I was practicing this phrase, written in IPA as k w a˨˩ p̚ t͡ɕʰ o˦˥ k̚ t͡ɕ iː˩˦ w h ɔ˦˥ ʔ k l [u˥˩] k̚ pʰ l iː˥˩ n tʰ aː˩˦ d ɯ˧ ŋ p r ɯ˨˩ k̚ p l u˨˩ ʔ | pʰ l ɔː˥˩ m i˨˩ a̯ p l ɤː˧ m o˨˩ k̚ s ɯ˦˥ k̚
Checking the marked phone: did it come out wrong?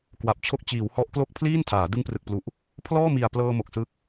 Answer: yes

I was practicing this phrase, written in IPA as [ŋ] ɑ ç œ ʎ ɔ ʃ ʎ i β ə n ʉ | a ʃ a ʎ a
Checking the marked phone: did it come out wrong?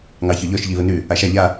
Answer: no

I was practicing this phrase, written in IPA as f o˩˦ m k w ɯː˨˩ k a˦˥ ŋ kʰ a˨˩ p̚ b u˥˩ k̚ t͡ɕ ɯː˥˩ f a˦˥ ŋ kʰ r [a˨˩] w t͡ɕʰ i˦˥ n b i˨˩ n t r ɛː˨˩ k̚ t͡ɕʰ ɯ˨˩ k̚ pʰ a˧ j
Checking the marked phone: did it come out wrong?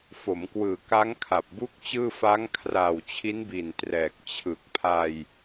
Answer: yes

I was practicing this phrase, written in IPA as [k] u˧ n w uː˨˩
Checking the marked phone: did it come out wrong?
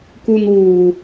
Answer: no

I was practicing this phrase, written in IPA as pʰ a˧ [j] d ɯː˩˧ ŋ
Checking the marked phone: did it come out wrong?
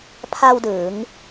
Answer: yes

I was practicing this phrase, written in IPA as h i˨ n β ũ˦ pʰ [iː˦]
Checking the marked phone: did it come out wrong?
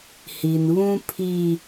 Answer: yes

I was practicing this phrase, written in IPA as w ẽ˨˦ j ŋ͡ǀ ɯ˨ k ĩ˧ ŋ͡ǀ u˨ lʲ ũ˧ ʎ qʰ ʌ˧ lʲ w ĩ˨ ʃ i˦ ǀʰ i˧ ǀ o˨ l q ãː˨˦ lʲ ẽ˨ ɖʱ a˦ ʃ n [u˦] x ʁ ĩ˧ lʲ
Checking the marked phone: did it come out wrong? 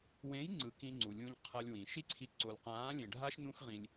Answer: yes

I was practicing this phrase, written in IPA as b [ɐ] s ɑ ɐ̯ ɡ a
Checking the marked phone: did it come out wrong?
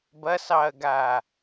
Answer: no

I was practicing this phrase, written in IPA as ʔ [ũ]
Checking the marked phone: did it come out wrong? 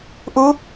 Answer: yes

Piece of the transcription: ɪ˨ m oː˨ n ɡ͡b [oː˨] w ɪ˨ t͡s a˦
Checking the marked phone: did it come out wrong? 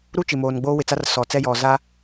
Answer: yes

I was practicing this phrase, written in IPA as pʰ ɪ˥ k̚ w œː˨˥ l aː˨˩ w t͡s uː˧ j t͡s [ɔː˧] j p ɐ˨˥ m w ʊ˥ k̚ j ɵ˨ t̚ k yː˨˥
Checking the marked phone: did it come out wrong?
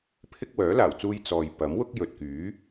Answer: yes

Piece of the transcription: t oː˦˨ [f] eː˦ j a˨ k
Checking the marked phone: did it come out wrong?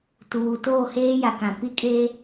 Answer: yes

